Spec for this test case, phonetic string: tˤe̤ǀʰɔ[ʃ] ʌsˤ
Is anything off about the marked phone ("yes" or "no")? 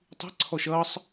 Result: no